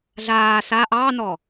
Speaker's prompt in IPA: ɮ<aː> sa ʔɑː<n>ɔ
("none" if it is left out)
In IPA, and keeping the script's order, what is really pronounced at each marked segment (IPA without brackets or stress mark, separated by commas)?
aː, n